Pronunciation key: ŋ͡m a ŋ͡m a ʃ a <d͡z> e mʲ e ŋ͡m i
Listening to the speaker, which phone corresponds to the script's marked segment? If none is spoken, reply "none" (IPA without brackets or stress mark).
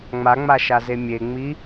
z